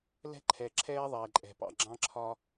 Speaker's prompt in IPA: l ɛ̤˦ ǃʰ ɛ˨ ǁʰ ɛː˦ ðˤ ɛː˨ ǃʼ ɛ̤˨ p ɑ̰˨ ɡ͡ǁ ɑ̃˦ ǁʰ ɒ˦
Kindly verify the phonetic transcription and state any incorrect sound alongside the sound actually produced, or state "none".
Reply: none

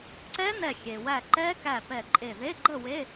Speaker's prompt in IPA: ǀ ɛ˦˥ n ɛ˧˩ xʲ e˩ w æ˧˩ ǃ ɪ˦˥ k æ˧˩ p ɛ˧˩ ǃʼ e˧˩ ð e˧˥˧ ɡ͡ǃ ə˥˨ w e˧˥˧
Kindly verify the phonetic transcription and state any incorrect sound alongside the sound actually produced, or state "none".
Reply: ɪ˦˥ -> ɛ˦˥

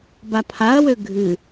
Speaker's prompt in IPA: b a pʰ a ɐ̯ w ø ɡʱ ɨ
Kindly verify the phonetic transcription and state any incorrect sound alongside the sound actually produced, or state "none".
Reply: none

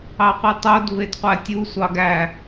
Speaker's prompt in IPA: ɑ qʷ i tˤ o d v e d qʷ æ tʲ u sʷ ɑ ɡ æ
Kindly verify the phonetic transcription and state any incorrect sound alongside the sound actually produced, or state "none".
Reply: none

